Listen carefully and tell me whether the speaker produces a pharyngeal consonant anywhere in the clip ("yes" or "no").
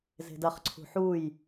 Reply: yes